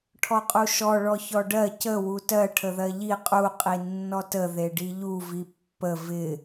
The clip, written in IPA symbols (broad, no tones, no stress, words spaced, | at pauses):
ʈʰɔqʼuʃɔ ɭɔçɔɖɜ cə wutɜ ʈʰəðɜʎi qʼu qʼinːɔtə ðeɖiʎu vipːə vɪ